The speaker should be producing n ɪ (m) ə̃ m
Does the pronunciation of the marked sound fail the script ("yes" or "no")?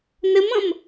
no